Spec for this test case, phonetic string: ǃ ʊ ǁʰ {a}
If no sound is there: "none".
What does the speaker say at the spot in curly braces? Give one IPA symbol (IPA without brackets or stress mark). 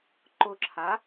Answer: a